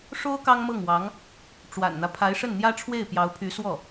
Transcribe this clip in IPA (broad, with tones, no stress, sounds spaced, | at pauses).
ʂ o˥ ʊ̯ k ɑ˥ ŋ m ɤ˥˩ ŋ w ɑ˧˥ ŋ | ʈ͡ʂ w a̰˨˩ n n̪ ä˦ pʰ a˧˥ ɪ̯ ʂ ə˥˩ n n̪ j ä˥ ʈ͡ʂʰ w e˥˩ ɪ̯ p j ɑ˧˥ ʊ̯ pʰ y˧˥ s w ɔ˥˩